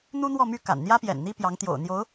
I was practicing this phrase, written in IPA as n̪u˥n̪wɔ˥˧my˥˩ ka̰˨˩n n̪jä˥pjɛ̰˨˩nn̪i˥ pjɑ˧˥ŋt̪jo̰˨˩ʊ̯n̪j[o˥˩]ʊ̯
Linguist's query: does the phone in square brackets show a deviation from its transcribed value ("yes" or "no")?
yes